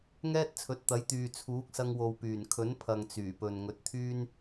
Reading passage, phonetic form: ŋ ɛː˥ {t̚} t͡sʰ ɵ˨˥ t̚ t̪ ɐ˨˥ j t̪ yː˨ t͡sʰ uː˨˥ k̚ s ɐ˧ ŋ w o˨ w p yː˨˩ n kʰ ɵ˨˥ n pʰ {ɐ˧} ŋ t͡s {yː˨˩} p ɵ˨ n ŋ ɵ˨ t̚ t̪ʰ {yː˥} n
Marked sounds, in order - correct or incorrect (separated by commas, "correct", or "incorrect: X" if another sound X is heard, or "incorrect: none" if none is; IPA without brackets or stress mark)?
correct, incorrect: ɐ˨, correct, correct